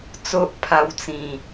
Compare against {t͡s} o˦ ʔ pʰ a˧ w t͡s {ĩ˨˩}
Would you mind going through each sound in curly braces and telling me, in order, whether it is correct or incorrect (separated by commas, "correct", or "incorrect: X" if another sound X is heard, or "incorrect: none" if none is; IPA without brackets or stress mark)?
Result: correct, correct